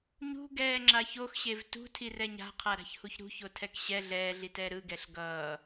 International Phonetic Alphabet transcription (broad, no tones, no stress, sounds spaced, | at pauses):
ɲ ṳ ɡ ɛː ŋ͡ǁ a ç o x ɕ e v t ṳ tʰ i r ɛ ɲ a̤ qʰ a ɾ a̤ ç h u ç ɾ ṳ ç o tʰ ɛ k ɕ ɛ ɮ ɛː ɮ i t ɛː ɾ ɯ ɡ ɛ ɬ ɡ ʌː